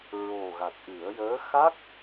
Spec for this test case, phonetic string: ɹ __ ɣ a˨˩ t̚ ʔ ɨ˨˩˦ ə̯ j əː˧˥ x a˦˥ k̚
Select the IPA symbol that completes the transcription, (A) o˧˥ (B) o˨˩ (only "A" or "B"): B